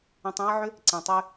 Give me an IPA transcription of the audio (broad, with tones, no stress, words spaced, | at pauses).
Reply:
ẽ˧tˤã˦ə̯ʕʏ˦ | ǀĩ˨tˤy˧